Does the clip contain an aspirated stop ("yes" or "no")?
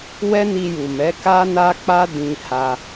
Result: no